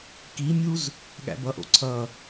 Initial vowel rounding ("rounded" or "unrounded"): unrounded